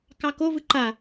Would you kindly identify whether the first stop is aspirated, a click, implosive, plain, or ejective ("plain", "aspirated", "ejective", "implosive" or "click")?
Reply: plain